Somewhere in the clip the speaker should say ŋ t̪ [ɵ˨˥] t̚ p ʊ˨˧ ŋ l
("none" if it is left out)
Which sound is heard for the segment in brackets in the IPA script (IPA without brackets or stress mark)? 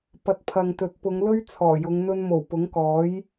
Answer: ɵ˨˥